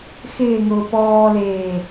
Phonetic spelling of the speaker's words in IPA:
x ɪː ŋ ʊː p ɔː l eː

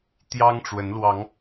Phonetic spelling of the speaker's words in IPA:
t̪ j ɑ˦ ŋ ʈ͡ʂ w ə˨˦ n l w ɑ˨˦ ŋ

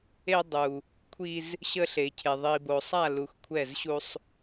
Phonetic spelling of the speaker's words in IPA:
e˦ dˤ u˨ | kʷʰ i˦ z | ɕ ə˦ ɬ e˨ cʰ e˨ ðˤ i˨ b o˨ sˤ a˦˨ l u˨ x kʷʰ ɛ˦˨ z ɕ u˦ sˤ

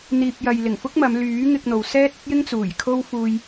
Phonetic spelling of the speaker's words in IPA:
n̪ iː˨ p̚ j ɐ˨ j l ɪ˨˩ ŋ f ʊ˥ k̚ m ɐ˨˧ m l yː˨˥ ŋ ɪ˧ k̚ n̪ o˨ w s ɛː˥ t̚ ɐ˥ t̚ j ɪ˥ ŋ t͡s uː˨˩ j kʰ o˥ w f uː˧ j

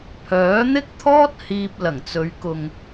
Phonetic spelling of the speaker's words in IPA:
pʰ œː˨˥ n̪ ɪ˥ k̚ t̪ʰ ɔː˥ t̚ h iː˧ p̚ l ɐ˨˩ ŋ t͡s ɵ˨˧ ɥ k ʊ˨ ŋ

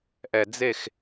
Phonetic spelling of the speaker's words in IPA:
ʔ ɛ˨ d͡z e˦˨ x

